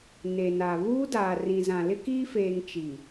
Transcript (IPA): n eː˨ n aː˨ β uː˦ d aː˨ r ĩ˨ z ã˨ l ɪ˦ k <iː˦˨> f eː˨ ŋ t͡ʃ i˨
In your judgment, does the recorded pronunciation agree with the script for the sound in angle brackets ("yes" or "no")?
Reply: no